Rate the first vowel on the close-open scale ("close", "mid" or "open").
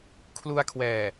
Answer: close